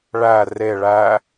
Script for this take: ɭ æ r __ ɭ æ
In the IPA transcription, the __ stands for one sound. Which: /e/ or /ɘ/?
e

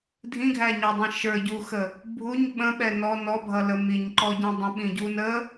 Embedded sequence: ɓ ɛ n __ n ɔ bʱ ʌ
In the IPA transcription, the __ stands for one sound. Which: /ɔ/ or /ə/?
ɔ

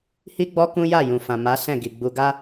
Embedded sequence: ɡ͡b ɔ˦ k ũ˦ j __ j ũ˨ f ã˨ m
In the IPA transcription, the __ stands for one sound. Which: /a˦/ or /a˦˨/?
a˦˨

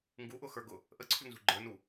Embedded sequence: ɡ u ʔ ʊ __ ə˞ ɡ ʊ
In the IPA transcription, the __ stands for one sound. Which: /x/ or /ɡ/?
x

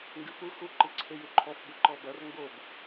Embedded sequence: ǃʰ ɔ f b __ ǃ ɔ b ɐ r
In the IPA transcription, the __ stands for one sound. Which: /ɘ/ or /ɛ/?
ɘ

